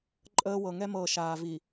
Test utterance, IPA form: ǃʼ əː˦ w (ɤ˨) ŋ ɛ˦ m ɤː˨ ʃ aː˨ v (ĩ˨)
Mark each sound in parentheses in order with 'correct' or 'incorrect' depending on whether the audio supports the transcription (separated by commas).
correct, incorrect